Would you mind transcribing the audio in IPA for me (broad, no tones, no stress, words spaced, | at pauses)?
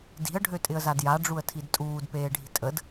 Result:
di̤ə̯ ɖʱøtʼɪə̯zadja ɖ͡ʐuə̯tʰidtʼuːd peːɖʱi̤tʼəd